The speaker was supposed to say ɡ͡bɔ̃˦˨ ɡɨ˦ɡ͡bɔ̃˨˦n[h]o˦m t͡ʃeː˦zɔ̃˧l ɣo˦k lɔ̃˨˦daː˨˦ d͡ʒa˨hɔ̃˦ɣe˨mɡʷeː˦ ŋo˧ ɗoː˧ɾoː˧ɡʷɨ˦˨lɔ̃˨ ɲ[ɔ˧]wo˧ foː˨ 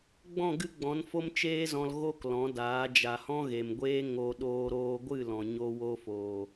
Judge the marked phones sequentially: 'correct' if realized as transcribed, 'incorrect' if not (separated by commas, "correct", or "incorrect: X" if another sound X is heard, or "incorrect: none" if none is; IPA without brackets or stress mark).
incorrect: f, incorrect: o˧